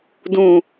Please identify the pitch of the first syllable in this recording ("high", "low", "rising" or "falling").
low